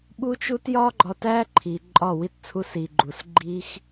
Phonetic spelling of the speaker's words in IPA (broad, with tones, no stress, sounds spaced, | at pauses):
ɓ u˦ t͡ʃ u˦ t j ɒ˦ ɡ͡ǃ ɒ˧ t æ˦ ǃʰ i˨ ǃʼ ɒ˦˨ w i˦˨ t t͡sʰ u˦ s i˧ ɡ͡ǃ u˧ s ɡ͡ǃ i˦ x